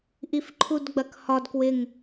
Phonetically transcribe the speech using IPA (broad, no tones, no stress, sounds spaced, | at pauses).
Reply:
ʔ i f ǃʰ u d ɡ͡b ɐ k h ɒ d k w ɪ ŋ